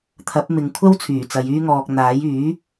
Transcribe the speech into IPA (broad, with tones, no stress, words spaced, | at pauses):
t̪ʰɐ˨˥p̚ mɪ˨˧ŋ kʷʰɐ˥wt͡sʰyː˨˩t͡sɐ˨˧j yː˥ŋɔː˧k̚ n̪aː˨˥j yː˨˥